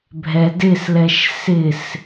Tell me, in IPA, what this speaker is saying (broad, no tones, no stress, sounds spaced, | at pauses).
bʱ ɛ d ɪ s l ɛ ʃ s ɪ s